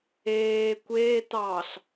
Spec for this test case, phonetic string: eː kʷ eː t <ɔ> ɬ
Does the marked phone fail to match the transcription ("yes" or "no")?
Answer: yes